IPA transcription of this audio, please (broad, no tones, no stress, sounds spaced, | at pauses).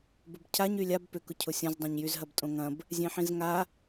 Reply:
b ʊ b cʰ a ɲ y lʲ a b p ʏ k ʊ cʰ ʊ sʲ ɐ̃ z dˤ õ ɲ j y z ɦ ɐ b tʼ õ ŋ ɐ̃ b | zʲ ẽ ħ ĩ z ŋ a